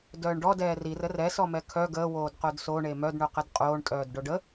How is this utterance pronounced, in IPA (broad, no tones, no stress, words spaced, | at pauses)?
dœːɳɖɔ dɛːrirə rɛsɔmɛ kʰœ ɡəː woːdqodsoɳe mœdɳo qədqʼoːɳ tʼœːdɖoɖə